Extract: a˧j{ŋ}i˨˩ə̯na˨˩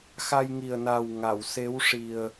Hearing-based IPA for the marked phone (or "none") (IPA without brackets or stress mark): ŋ